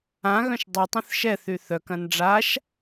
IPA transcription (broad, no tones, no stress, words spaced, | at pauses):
ã ɣœ̃ʃdˤutˤœ̃θ ʃɛθy θœkɐ̃n ɖ͡ʐaʃ